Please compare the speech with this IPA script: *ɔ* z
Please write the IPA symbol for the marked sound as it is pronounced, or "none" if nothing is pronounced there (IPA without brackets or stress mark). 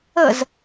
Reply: ə